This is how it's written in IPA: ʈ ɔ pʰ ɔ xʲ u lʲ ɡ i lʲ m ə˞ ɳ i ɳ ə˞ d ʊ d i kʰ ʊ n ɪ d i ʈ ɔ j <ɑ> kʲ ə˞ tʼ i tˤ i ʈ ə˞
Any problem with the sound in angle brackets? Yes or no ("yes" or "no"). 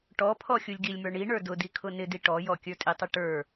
yes